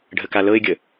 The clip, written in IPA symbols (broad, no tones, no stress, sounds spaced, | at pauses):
ɖʱ ə k a l ɤ ɪ̯ ɡʲ ə